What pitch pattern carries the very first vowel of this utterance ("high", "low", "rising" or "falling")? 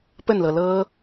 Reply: falling